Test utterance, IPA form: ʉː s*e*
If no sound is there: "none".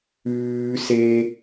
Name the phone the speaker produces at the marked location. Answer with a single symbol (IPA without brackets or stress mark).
e